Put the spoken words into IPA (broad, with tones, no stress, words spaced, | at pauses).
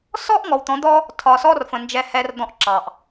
sɔ˦ʔŋɔ˨wt̪ɔ̃˨˦d̪ɔ˦ | tʰɒ˨sɔ˦rfə̃˨ nd͡ʒɛ˦hɛ˦rd̪ɔ̃˦ʔ ǁɑ˨ʔ